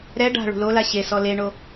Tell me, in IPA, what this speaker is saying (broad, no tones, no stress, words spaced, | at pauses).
ɾɛ ɖa̤ ɭṳlola ɕesɔ leɳo